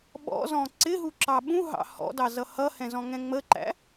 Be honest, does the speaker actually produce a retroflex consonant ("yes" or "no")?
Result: no